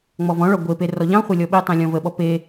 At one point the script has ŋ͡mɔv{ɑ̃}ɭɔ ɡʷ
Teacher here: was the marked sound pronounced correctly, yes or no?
no